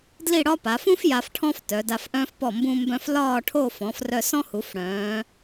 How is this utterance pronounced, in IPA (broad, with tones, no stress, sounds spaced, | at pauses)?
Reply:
d l i˥˧ ɽ ɒ˥ p a˩˧ f ũ˥ f j a˧ f ʈʰ ɔ̃˥ f t œ˩˧ d a˧ f ʔ œ̃ː˥ f p ɔ˧˩ m b ũ˧ m b œ̃˧ f l ɒː˥˧ ʈʰ o˥˧ f ɔ̃˩˧ f r œ˧ s ɔ̃˥ h u˩˧ f ɽ œ̃ː˩˧